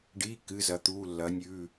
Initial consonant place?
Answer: retroflex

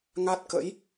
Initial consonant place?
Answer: velar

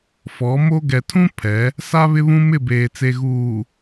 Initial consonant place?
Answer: labial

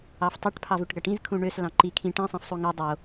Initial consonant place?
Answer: labial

